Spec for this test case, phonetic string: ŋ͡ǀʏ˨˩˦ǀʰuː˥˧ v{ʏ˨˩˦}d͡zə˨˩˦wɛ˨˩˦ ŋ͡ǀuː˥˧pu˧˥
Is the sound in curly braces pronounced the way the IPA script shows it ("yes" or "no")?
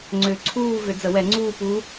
yes